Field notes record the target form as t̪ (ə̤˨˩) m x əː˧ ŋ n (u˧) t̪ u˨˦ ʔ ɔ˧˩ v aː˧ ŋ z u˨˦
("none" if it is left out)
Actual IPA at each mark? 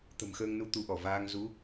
ə̤˨˩, u˧

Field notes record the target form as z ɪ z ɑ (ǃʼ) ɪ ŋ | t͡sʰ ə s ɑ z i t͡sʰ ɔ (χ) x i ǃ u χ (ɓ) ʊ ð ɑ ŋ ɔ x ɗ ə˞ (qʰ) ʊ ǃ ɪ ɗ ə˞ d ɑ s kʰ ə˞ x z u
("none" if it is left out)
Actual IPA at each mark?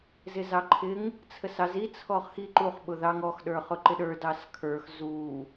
ǃʰ, χ, ɓ, χ

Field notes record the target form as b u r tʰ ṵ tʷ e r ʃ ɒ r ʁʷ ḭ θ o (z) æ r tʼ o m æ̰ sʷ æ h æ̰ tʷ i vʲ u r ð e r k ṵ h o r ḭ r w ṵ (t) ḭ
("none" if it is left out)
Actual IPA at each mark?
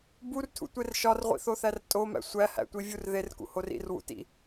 θ, t

